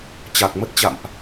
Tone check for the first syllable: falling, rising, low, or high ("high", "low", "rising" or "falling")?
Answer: low